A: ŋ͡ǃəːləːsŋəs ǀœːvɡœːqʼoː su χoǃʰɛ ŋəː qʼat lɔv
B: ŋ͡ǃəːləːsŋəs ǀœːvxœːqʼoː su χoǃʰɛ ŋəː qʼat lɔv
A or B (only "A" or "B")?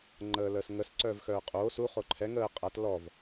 B